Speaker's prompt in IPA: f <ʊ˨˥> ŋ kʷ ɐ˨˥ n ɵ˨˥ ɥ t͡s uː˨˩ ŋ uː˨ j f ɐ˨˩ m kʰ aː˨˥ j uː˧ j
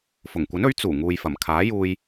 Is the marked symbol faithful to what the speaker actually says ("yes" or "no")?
no